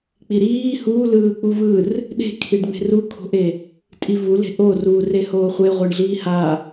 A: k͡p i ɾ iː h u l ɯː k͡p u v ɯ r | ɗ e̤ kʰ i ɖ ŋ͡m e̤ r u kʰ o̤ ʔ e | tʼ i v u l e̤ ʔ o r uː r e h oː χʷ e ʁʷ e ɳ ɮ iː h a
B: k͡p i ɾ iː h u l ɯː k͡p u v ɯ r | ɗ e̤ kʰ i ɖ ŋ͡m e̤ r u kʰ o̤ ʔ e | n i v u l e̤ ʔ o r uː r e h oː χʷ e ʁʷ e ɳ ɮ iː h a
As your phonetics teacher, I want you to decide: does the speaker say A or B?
A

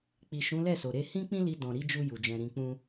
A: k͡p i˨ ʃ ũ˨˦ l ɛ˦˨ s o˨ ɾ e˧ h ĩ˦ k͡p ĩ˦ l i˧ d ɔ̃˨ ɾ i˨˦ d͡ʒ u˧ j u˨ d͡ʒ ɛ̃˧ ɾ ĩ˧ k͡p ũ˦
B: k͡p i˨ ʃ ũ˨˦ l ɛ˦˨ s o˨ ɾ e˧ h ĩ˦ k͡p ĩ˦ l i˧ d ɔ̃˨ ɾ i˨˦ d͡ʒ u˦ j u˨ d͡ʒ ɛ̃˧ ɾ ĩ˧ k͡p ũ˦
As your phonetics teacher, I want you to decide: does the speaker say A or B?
A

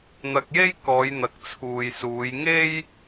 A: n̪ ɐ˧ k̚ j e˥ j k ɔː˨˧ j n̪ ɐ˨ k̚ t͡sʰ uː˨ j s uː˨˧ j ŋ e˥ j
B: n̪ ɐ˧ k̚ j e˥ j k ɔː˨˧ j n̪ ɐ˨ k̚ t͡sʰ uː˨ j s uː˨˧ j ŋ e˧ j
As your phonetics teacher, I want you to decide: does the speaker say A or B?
A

